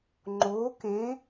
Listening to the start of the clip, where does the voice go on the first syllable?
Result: rising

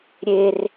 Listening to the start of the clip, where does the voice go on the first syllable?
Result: high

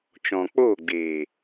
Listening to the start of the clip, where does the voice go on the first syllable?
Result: low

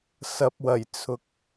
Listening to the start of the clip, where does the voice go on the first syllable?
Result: low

